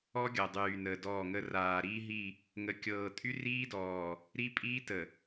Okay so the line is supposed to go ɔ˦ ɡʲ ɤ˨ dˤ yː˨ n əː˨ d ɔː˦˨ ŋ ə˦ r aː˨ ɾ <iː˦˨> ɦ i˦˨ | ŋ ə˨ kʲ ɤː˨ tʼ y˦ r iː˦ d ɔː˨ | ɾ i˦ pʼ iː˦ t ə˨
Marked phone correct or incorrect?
incorrect